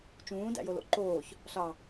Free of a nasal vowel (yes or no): no